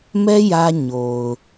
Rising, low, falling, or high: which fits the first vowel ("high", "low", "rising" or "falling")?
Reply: high